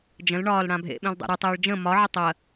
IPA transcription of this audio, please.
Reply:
d͡ʒ ə̃ l ɳ ɒː l ɽ ã bʱ ḛ ɓ ẽ l dˤ ɛ̰ ɾ ɨ tˤ ɪː ɭ d͡ʒ ə̃ m ɒ ʕ ɪ tˤ ɜ

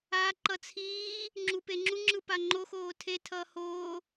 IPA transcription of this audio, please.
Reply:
a ǃ ʌ t͡sʰ iː | ŋ͡ǁ u p e ŋ͡ǁ u ŋ͡ǁ ɯ p a ŋ͡ǃ o x oː tʰ e tʰ ʌː h oː

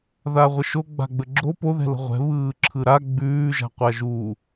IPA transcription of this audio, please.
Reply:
ð a ʁʷ ə ʃ o ɡ͡b a̤ ɡ͡b ə ɡ͡ǁ o p o ð ɛ̤ l ə̤ ʁʷ ɛ̤ β ɯː ǁʰ ɯ ɾ a ɡ͡b ʉː ʒ a̤ qʷ a ʒ u

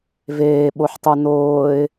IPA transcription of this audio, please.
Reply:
v eː ɓ o ħ tˤ u n oː ɪ̯

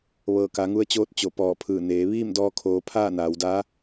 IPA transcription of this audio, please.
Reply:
ʋ ɤː˧˩ k a˩˧ ŋ u˧ ə̯ t͡ɕ oː˧˥ t̚ t͡ɕ o˧˩ p ɔː˧˩ pʰ ɯː˧˩ n eː˩˧ ʋ iː˥˨ m d ɔː˧ kʰ oː˩˧ pʰ aː˥˨ n aː˩˧ w d aː˧˥

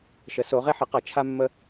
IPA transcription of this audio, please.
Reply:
ʃ ə˩˧ s o˩˧ ʁ e˧ ħ ə˩˧ q ʌ˩˧ t͡ʃʰ a˧ mː ə˧

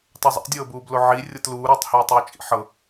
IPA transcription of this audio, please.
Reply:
tˤ u zˤ ḭ dʲ ɤː b uː b l o ʕ i rʲ ɤ t l uː ɾ uː tˤ h eː tˤ uː t͡ʃʼ ḭ ħ ɤ

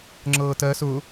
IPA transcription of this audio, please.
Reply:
ŋ͡ǁ ɤː t ɜ s ʊ

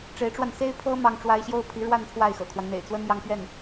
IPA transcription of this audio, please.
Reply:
ʈ͡ʂ e˧˥ ɪ̯ ʈ͡ʂ w a˧ n s e˥ ɪ̯ pʰ ɤ˥ m ɑ˥ ŋ ʈ͡ʂ w a˥ ɪ̯ ɕ j o˥ ʊ̯ pʰ i˧˥ ɻ w a˥˧ n pʰ w a˥˩ ɪ̯ x ɤ̰˨˩ kʰ w a˦ n n̪ ḛ˨˩ ɪ̯ t͡s w ə˥ n j ɑ˥˧ ŋ p ɥ ɛ˥˩ n

